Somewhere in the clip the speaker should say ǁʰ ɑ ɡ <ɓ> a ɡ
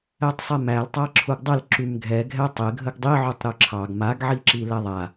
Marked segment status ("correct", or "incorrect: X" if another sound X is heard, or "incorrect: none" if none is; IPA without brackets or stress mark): incorrect: m